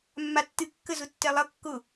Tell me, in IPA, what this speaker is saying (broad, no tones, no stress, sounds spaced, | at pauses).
mː a tː ɨ kː ə z ʊ tː ɛ lˠ ʌ kː ʊ